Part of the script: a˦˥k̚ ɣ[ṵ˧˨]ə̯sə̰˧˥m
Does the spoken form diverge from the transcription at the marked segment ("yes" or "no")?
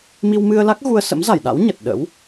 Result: yes